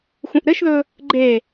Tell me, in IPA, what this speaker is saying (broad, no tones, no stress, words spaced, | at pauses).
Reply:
xũʔɾɘʃðɵ | ɡ͡ǃe